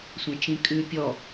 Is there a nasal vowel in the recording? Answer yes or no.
yes